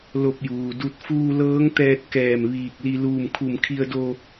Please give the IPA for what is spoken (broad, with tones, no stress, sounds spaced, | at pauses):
l o˧ p̚ j uː˩ d u˧ t̚ f uː˧ l ɤː˧˥ ŋ t̪ ɛː˧ t̚ k ɛː˧˩ m ʋ iː˧˩ k̚ l i˧ l uː˧˩ m kʰ u˧˩ m kʰ i˧ ə̯ d o˧